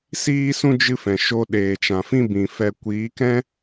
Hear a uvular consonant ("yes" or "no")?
no